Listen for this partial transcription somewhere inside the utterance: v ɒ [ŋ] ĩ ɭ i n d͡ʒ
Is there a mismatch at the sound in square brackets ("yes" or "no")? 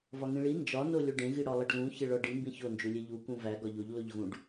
no